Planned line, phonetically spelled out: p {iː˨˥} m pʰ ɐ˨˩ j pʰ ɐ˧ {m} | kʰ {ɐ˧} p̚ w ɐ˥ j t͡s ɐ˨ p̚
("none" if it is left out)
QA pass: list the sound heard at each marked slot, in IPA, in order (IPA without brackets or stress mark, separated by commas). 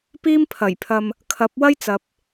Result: iː˥, m, ɐ˨˥